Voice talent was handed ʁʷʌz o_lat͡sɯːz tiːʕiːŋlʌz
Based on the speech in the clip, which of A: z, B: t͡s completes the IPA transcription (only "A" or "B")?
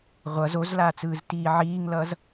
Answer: A